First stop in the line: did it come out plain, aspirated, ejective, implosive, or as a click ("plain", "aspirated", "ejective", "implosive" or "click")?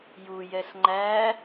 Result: click